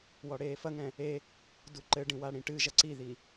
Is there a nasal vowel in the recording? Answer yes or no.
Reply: yes